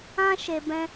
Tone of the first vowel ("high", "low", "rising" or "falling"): high